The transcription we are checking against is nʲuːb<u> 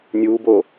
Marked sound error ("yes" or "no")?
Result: yes